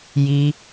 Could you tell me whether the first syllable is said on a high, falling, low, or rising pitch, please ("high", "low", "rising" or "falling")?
high